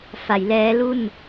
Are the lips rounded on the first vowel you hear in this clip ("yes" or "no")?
no